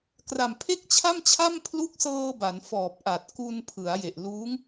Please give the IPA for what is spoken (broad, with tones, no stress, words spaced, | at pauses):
kra˨˩mpʰe˥˩k̚t͡ɕʰa˥˩mt͡ɕʰa˥˩m pʰlu˦˥k̚sɤː˧ ba˩˦n fɔː˨˩p̚ʔa˨˩t̚ ku˧npʰɯ˩˦a̯je˨˩ʔ luː˦˥ŋ